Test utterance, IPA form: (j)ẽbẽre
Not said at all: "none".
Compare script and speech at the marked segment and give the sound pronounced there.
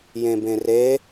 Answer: j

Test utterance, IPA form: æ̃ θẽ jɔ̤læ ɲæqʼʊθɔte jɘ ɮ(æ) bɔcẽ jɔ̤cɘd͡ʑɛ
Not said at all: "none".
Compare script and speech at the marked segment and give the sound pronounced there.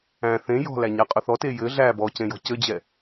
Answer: æ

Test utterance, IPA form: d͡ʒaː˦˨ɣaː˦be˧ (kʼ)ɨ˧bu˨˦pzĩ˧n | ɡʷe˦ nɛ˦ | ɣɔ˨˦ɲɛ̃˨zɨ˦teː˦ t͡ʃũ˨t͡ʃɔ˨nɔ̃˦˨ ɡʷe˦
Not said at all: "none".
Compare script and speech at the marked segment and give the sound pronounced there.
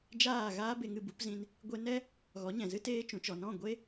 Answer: ŋ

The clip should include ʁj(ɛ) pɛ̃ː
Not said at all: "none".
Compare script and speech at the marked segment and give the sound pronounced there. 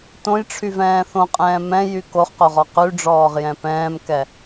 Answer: ɛ̃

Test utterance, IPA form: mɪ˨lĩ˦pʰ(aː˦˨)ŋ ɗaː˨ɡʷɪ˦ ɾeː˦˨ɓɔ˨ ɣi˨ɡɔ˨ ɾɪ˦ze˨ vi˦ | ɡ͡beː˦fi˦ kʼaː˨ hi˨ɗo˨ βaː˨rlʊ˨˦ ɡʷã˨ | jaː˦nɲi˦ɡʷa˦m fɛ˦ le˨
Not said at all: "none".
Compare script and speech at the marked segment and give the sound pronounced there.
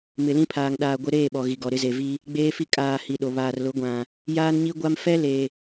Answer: aː˨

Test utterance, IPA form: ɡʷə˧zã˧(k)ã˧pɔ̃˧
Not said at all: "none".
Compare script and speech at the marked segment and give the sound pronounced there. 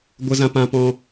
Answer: p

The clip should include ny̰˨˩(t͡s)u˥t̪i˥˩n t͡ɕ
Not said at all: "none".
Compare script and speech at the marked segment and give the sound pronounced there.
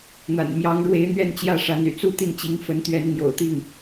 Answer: t͡s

